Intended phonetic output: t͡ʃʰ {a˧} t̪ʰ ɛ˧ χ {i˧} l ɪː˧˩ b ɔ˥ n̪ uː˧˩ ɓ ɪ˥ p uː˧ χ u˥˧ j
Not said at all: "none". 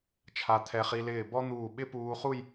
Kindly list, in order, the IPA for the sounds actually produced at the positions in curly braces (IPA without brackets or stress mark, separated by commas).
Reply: a˧, i˧